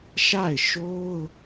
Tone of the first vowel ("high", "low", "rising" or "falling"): falling